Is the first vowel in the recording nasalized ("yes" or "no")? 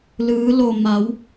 no